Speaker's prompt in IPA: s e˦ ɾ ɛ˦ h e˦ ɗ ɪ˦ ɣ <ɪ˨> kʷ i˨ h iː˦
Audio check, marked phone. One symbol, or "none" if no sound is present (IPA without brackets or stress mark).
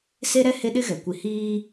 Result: ɛ˨